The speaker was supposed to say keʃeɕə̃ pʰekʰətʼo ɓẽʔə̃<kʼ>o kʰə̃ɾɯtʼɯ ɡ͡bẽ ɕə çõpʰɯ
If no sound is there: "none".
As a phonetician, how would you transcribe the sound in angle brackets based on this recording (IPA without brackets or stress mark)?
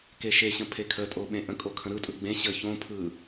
kʼ